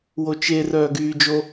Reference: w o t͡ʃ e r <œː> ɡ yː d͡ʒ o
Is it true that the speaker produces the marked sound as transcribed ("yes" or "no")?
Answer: yes